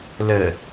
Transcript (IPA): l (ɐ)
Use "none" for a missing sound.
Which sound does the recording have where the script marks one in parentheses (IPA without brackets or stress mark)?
ə